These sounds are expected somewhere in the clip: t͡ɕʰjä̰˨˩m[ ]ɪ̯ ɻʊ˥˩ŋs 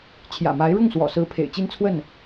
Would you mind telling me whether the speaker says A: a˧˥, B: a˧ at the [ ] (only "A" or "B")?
A